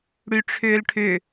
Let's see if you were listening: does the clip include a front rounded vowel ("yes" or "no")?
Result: yes